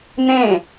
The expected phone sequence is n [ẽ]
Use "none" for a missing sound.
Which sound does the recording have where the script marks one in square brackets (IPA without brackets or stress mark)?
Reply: ẽ